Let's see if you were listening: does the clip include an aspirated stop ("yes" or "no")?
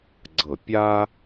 no